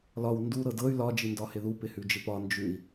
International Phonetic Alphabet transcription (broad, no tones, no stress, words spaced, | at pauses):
lɒw ndu ɾɤdɤy̯ lɒ d͡ʒindɒhɪðu pɪhʉd͡ʒɪpɒ nd͡ʒʉi̯